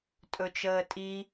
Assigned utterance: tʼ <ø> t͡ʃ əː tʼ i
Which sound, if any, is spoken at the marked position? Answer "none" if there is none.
ɵ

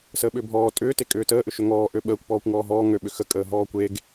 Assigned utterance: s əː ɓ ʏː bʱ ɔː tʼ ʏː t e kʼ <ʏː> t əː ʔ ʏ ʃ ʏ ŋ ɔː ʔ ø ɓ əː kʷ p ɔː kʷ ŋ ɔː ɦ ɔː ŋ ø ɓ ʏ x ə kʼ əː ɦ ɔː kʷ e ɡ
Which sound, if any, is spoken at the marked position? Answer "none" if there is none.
ʏː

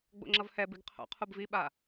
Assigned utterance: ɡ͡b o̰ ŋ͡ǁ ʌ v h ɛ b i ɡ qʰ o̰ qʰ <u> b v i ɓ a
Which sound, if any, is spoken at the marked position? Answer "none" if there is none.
u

